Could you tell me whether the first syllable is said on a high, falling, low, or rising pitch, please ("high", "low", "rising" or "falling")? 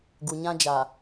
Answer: low